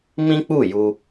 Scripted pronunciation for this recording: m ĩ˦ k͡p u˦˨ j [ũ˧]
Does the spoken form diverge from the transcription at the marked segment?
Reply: yes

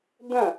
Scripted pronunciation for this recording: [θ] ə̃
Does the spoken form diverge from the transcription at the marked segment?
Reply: yes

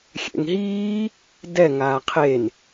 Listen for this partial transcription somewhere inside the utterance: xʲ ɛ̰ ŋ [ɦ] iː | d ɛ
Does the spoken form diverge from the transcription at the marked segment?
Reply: no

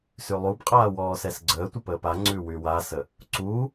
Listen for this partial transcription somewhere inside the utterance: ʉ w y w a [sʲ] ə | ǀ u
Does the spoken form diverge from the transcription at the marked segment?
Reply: yes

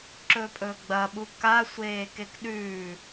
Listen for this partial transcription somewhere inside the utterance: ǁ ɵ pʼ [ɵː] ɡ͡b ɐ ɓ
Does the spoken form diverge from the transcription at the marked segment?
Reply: no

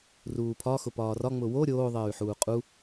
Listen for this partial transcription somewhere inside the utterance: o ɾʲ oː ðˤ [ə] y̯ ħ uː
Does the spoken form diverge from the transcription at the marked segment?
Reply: yes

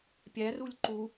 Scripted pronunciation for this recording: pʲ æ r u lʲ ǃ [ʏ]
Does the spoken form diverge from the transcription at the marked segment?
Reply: yes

